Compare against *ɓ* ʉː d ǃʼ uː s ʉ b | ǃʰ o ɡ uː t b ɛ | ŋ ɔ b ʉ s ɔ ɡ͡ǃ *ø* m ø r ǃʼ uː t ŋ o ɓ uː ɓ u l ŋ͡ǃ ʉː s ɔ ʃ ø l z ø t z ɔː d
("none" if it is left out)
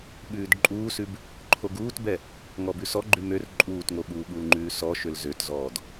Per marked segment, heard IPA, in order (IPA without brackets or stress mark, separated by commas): ɓ, ʉ